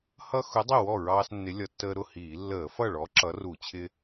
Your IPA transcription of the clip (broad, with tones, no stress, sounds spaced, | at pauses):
h ʌ˦ x ʊ˨˥ dˤ ɪ˥˩ w ɔ˥˩ ɹ ɑː˦ s nː ɪ˨˥ lʲ ʌ˧˩˧ tː əː˦ ɾ ʊ˥˩ h iː˧˩˧ lː əː˧˩˧ f ʌ˥˩ ɭ ɔ˨˥ ǁ ʌ˨˥ r u˧˩˧ t͡ɕʰ ɪ˦